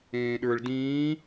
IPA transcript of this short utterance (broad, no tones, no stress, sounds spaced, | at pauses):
ẽː ɗ ə˞ ɭ d ĩː